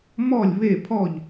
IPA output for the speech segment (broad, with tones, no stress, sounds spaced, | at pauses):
m ɔ˥˨ lʲ β e˥˨ pʰ ɔ˥˨ ʎ